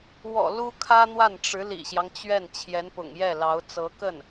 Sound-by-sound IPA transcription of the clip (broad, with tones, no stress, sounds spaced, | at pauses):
w ɔ̰˨˩ l u˥ kʰ ä˥ n̪ w a˥˩ n ʈ͡ʂ ɻ̩˧˥ l ḭ˨˩ ɕ j ɑ˦ ŋ t͡ɕ ɥ ɛ˥˩ n t͡ɕʰ j ɛ˧˥ n p ʊ̰˨˩ ŋ j ɛ˥˩ l ɑ˧˥ ʊ̯ t͡s ɤ˧˥ k ə˥˩ n